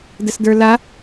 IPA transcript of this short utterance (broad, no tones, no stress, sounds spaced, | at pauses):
d ə s d ə˞ l a